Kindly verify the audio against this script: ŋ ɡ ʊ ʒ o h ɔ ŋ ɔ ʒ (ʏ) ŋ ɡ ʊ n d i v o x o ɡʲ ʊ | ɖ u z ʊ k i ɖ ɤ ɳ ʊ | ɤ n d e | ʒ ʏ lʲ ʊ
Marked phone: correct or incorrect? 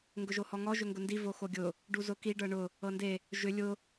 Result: correct